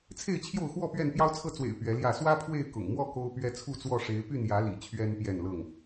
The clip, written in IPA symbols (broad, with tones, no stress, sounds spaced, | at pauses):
t͡sʰ e˥˨ ɪ̯ t͡ɕʰ j o˥˨ ʊ̯ x w ɔ˥˨ p ɥ ɛ˥˨ n p j ɑ˦ ʊ̯ t͡sʰ ɤ˥˨ t͡s w ḛ˨˩ ɪ̯ p ɥ ɛ˨˦ l j ä˥˨ s w ä˦ pʰ w e˥˨ ɪ̯ k ʊ̰˨˩ ŋ m w ɔ˥˨ k o˦ ʊ̯ p ɥ ɛ˦ t͡sʰ u˥˨ t͡s w ɔ˥˨ ʂ e˨˦ ɪ̯ p y˥˨ n j ä˨˦ l ḭ˨˩ t͡ɕʰ ɥ ɛ˦ n p j ɛ˥˨ n l ɤ˥˨ ŋ